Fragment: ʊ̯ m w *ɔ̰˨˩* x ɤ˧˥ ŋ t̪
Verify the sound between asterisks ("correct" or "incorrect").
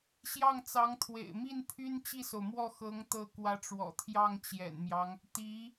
incorrect